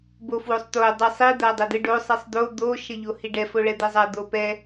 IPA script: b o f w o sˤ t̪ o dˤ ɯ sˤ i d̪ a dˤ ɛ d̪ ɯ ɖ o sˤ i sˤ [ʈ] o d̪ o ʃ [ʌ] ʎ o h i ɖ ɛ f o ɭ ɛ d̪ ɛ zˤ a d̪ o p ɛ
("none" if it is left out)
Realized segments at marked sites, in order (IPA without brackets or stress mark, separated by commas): d̪, ʌ